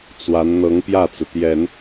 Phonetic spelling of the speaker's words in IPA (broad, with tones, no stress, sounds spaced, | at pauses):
t͡s w a˧˥ n n̪ ɤ˧˥ ŋ p j ä˥˩ t͡s ɹ̩˩ t̪ j ɛ˨˩˦ n